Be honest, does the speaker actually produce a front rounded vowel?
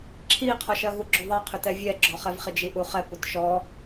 yes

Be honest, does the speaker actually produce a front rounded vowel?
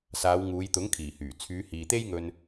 yes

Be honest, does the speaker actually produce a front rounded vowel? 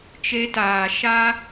no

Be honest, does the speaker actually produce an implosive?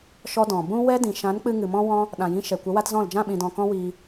yes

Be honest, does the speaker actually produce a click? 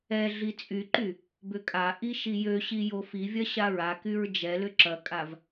yes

